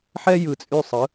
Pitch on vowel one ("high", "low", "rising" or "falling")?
high